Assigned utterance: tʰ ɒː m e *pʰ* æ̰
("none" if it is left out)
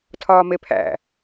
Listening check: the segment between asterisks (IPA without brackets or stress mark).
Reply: pʰ